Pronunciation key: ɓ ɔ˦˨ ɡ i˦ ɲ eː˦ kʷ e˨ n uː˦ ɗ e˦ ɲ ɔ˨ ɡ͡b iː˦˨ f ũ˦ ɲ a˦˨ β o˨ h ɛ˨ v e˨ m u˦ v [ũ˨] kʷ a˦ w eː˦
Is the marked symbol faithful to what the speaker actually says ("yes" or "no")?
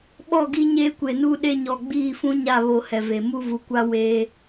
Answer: no